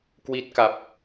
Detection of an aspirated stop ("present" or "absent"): absent